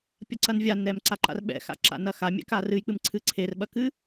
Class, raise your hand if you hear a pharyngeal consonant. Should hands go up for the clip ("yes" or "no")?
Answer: no